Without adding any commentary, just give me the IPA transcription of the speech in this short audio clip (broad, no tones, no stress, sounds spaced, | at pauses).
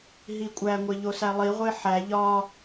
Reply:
ɦ i kʷʼ æ ŋʷ e ʎ o s æ lˠ i ʁʷ e ħ æ ʎ ɒ